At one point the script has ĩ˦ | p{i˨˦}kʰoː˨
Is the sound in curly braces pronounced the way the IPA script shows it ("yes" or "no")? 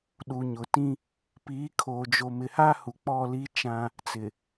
no